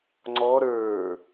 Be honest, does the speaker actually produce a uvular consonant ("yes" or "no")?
no